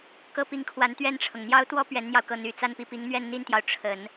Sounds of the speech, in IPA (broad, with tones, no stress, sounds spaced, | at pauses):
k ɤ˥ p i˧˥ ŋ kʰ w a˧˥ n t̪ ɥ ɛ˥˩ n ʈ͡ʂʰ ɤ˩ ŋ n̪ j ɑ˥ ʊ̯ t̪ w ɔ˥ p ɥ ɛ˧˥ n n̪ j ɑ˧ ʊ̯ k ɤ˥˩ n̪ y˨˩ t͡s a˥˧ n p i˥˩ p i˧˥ ŋ n̪ ɥ ɛ˥˧ n n̪ i˥˩ n t̪ j ɑ˩ ʊ̯ ʈ͡ʂʰ ə˨˩˦ n